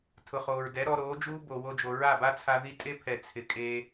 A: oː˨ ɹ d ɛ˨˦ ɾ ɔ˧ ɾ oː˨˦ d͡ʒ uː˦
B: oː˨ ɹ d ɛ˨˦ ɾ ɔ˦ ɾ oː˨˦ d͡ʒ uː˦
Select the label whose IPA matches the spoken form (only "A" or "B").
A